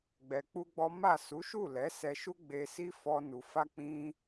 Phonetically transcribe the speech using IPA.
ɡ͡b ɛ˧ k͡p u˦ ɡ͡b ɔ˦ m a˦˨ s u˨˦ ʃ u˦˨ l ɛ˨˦ s ɛ˧ ʃ u˦ ɡ͡b e˧ s i˦ f ɔ˦ n u˧ f a˦ k͡p ĩ˦

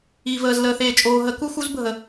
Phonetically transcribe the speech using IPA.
iː˨ v əː˨ z l əː˨ θ eː˨ t͡ʃʼ oː˨ ɦ ə˨˦ k u˦ x u˦ z bʱ ə˨

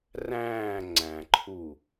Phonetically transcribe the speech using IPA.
r æ̃ː ŋ͡ǀ æ̃ ǃʰ u

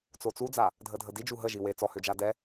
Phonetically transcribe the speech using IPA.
t͡s o t͡s u d͡z a | dʱ ə dʱ ə d i d͡ʒ u ɦ ə ʒ i w e t͡s ɔ h ø d͡ʒ a d ɛ

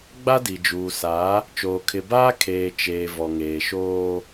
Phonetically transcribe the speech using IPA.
ɡ͡b a˦ d i˨ d͡ʒ uː˨ s a˨˦ | t͡ʃ oː˨ kʰ ɪ˨ b aː˦ kʰ eː˨ t͡ʃ eː˨ v ɔ˨ ŋ eː˨ ʃ oː˦

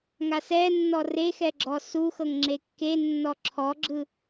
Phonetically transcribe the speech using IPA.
ŋ a s ɛ nː ɔ r e x ɛ ɡ͡ǁ ɔ s u x ɤ ŋ ŋ͡ǁ e kː e nː ɔ ǁʰ ɔ ɡ͡ǁ ɯ

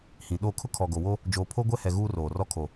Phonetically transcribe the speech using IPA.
h ĩ˨ ɗ o˦˨ kʰ ʊ˦ kʰ ɔ˨ ɡ o˨ w o˦ | d͡ʒ oː˨ pʰ o˦ ɡʷ ɛ˦ h ɛ˨ ɣ uː˦ r oː˨ r ɔ˦ kʰ o˨

